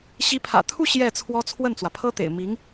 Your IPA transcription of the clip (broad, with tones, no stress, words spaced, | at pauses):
ɕi˧˥pʰä̰˨˩t̪ʰu˥˧ ɕjɛ˥˩t͡sʰwɔ˥ t͡sʰwə˥˩nt͡swä˩pʰɤ˥t̪ḛ˨˩ɪ̯ mi˧˥ŋ